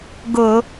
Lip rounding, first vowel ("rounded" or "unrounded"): rounded